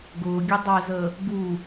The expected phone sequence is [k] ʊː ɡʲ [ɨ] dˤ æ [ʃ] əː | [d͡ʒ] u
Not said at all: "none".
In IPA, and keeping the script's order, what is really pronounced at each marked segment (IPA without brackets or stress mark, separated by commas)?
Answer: ɡ, ɛ, z, ɡ